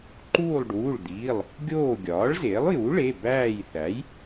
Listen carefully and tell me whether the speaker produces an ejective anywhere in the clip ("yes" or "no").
no